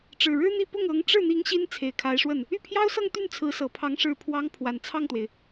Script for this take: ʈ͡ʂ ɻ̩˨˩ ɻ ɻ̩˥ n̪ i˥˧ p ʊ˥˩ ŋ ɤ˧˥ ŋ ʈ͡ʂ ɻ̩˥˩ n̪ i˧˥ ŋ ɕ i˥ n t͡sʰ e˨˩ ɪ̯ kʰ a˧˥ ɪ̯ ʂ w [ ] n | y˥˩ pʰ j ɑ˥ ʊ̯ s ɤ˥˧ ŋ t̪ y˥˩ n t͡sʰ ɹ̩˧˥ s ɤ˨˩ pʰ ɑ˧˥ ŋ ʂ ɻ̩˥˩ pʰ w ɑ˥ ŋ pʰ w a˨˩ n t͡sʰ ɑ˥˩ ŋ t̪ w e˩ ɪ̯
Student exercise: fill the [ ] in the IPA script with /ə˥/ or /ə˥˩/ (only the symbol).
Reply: ə˥˩